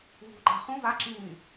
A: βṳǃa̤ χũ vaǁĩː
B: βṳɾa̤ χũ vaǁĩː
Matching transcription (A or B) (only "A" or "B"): A